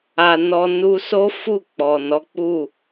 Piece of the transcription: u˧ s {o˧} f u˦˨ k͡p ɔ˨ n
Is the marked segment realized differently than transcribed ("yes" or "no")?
yes